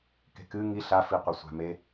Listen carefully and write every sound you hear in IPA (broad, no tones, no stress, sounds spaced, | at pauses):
k e̤ k ɨ ŋ i ɬ a f i qʷ ɐ sʷ a̤ m e